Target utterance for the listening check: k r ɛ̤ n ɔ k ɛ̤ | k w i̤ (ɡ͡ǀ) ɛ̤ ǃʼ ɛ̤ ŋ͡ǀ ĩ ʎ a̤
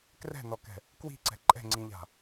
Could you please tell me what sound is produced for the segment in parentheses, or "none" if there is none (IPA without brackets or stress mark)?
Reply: ǀ